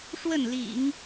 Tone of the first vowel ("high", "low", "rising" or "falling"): falling